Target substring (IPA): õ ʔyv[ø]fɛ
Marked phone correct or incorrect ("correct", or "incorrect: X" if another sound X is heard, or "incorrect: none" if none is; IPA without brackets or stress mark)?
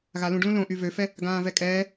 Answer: correct